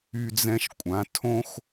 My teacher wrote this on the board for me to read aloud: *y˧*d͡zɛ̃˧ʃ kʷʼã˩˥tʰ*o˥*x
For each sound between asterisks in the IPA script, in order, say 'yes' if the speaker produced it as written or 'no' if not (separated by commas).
yes, no